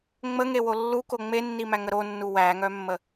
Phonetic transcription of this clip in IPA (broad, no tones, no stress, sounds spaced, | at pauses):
ŋ͡m ə ŋ e w o lː u k o ŋ͡m e nː i m æ ŋ ə ɾ o nː u w æ ŋ œ mː ə